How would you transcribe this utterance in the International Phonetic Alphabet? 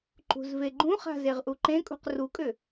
ǃ ṳ z v e ɡ͡ǃ ũ χ a̤ z e ʁ ʔ u ǃ ẽ kʼ ṳ q r u kʼ ʏ

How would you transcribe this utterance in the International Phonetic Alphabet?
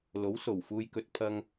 l o˨˥ w s o˨˩ w f uː˨ j k ɵ˨ t̚ pʰ ɐ˧ ŋ

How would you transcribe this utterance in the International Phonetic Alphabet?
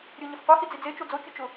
ɾʲ ʊ ɲ ɪ f qʷ e h i d͡z i d͡z e t͡ʃ o d͡z o kʲ ʊ t͡ʃ ʊ

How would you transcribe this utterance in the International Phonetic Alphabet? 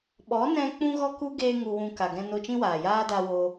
ɓ ɔ˨˦ n ɛ̃˧ k͡p ũ˦ ɣ ɔ˦ k u˦ ɡ eː˦ ŋ u˧ w ũ˧ k a˨ ɡ ɛ̃˧ n o˧ t͡ʃ ĩ˦ w aː˨ j aː˦ d a˦ w o˦

